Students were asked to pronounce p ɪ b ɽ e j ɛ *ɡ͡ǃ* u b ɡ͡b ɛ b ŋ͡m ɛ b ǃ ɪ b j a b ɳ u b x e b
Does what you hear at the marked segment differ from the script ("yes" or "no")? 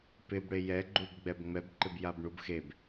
no